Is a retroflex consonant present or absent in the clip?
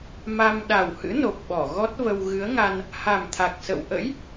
absent